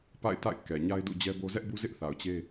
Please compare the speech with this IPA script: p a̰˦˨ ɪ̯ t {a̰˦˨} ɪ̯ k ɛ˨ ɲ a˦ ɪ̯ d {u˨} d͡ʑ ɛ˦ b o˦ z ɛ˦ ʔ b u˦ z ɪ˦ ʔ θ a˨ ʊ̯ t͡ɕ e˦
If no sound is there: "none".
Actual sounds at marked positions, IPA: a̰˦˨, ṵ˦˨

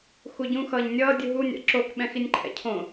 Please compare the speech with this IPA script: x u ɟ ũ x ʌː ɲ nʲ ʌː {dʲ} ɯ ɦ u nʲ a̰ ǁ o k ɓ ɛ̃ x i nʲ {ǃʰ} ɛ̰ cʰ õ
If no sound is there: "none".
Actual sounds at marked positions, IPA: dʲ, ǃʰ

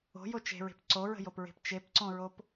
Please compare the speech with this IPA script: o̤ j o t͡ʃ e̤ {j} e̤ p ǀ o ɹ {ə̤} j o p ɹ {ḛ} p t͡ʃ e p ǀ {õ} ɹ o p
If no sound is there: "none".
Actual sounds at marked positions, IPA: ɹ, ə̤, e̤, õ

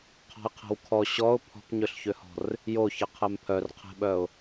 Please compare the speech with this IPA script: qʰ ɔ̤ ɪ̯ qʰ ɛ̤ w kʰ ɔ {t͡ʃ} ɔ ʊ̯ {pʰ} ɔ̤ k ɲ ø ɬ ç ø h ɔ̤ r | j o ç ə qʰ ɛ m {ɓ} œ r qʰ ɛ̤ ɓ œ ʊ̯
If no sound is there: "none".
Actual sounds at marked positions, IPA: ɕ, pʰ, pʰ

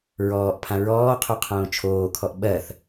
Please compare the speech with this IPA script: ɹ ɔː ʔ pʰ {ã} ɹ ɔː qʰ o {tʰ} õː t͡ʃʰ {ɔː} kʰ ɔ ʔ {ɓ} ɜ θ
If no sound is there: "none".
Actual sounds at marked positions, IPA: ã, qʰ, oː, ɓ

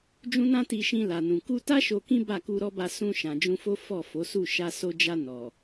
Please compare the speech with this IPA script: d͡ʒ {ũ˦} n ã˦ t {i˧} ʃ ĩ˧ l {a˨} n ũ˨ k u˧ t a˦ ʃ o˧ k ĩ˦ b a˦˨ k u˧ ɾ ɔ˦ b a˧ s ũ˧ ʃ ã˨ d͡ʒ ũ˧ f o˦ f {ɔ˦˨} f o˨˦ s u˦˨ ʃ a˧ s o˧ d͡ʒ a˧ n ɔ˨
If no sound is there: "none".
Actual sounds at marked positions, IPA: ũ˦, i˧, a˨, ɔ˦˨

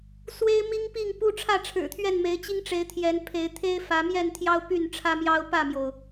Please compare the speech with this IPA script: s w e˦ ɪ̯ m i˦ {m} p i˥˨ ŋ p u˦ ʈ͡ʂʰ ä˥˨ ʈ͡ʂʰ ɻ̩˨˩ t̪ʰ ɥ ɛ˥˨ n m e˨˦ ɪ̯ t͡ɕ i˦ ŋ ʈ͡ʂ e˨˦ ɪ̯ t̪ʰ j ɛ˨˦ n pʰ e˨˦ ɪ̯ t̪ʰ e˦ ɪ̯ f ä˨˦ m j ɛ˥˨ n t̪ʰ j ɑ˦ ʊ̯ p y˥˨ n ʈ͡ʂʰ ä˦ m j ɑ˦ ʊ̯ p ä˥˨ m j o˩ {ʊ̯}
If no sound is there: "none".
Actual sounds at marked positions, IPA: ŋ, ʊ̯

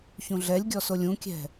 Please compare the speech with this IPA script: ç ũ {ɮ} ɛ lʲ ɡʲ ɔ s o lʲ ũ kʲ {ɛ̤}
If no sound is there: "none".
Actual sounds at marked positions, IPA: ɮ, ɛ̤

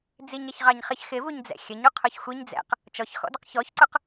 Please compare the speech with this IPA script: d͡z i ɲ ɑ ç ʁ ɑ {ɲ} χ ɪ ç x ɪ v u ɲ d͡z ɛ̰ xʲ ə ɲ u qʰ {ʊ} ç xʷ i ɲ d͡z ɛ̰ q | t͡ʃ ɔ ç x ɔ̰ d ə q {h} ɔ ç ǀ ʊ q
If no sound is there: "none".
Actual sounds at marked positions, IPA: ɲ, ʊ, ç

